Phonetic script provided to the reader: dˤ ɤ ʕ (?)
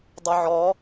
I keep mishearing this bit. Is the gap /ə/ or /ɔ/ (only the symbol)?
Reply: ɔ